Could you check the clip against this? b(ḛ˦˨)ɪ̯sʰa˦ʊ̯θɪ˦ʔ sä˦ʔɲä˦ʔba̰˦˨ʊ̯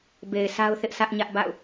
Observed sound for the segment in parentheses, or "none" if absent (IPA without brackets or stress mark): e˨